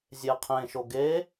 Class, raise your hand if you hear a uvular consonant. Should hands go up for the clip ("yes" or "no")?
yes